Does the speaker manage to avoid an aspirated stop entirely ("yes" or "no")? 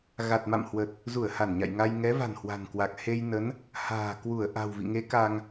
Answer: yes